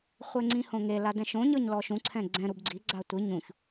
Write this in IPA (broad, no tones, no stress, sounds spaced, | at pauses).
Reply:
χʷ ɛ ŋ͡ǀ ĩ h õ ŋ e l a d ɛ̃ ʃ õ ɲ ɤ ɲ l ɔ ʃ ũ ǀʰ ɛ̃ ɡ͡ǀ ɛ̃ ɾ u b ɡ͡ǀ i ɡ͡ǀ a tʷ i ɲ ũ ç